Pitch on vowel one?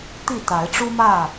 falling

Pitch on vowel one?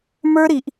high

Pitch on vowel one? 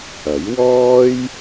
rising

